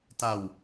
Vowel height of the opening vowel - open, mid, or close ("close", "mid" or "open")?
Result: open